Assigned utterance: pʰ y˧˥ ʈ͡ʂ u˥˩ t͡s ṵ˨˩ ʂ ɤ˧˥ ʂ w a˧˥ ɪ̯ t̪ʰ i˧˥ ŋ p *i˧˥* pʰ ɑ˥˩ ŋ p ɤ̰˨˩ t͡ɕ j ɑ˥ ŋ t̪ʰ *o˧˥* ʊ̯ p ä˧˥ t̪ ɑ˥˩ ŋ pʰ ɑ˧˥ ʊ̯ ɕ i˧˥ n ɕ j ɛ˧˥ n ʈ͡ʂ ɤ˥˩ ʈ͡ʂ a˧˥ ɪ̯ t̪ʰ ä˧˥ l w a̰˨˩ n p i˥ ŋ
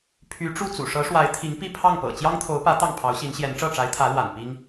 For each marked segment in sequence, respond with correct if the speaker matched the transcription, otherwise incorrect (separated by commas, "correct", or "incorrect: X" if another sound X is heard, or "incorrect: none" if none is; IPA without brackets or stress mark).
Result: incorrect: i˥˧, correct